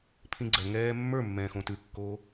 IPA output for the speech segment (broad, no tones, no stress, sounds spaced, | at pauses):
pʰ ĩ ɡ͡ǀ ɜ ŋ ɛː mː ə˞ mː ɛ̃ː x õ t ʉ kː oː